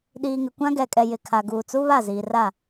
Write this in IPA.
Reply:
ɗ iː˨ ŋ ɪ˨ kʷ ã˦ ɡ ɛ˨ kʼ ɛ˨ j ɪ˨ kʰ a˨ ɡ uː˨ t͡s u˦ β a˦˨ z iː˨ r a˦˨

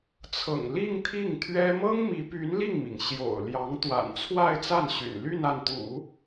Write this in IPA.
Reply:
t͡sʰ ɤ̰˨˩ ŋ l i˥˧ ŋ t̪ʰ i˥˩ ŋ t̪ʰ ɥ ɛ˥ m ɤ˥ ŋ m i˧˥ p y˧˥ n l i˥˩ ŋ m i˩ ŋ ɕ j o̰˨˩ ʊ̯ l j ɑ˧˥ ŋ t̪ w a̰˨˩ n t͡sʰ w a˥˧ ɪ̯ t͡s a˥˩ n ɕ y̰˨˩ n l y˥˧ n a˥˩ n t̪ ṵ˨˩˦

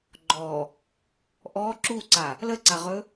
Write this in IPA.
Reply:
ɡ͡ǃ ɔ | ʔ ɔ ǁ u ǀ a | l ə ǀ a ʁ ɵ

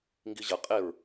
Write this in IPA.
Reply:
ŋ ɡ i ʑ ɐ qʼ e ɹ

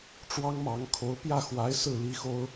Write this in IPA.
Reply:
ʈ͡ʂ w ɑ˥ ŋ m ɑ˧˥ ŋ kʰ o˧˥ ʊ̯ p j ä˥˩ x w a˧˥ ɪ̯ s ɹ̩˥˩ l i˥ x o˥ ʊ̯

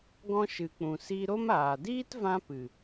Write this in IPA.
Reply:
ɡ ɔ̃˧ ʃ ɨ˨ k͡p ũ˨ s i˧ ɾ o˦ m aː˨ d iː˦ t v ã˧ p ɨ˨

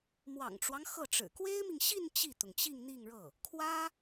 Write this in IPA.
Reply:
m w ɑ̰˨˩ ŋ ʈ͡ʂ w ɑ˦ ŋ x ɤ˥˩ ʈ͡ʂ ɻ̩˨˩ k w e˥ ɪ̯ m i˨ ŋ ɕ i˥˧ n t͡ɕ i˥˩ t̪ ʊ˩ ŋ t͡ɕ i˥˧ ŋ n̪ i˥˧ ŋ ɻ ɤ˥˩ | kʰ w ä˥

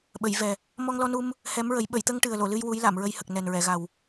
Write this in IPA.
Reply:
ɓ ə˨˩˨ j v ɛ˨˩ | m ɔ˧ ŋ l ɔ˧ n u˧ m | h ɛ˧˥ m ɹ ə˨˩˦ j ɓ ə˨˩˨ j t̪ ə˧ ŋ ʈ ɨ˨˩ ə̯ l o˨˩˨ l ɨ˧ j w u˧˥ j l a˨˩˨ m ɹ ə˧ j h ə˨˩ k̚ n ɛ˨˩ n ɹ ɛ˨˩˨ ɣ a˨˩ w

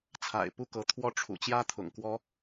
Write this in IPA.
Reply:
t͡sʰ a̰˨˩ ɪ̯ p u˥˩ k ɤ˧˥ t̪ʰ w ɔ˥˩ ʈ͡ʂʰ ṵ˨˩ t͡ɕ j ä˥ t̪ʰ ʊ̰˨˩ ŋ k w ɔ˥

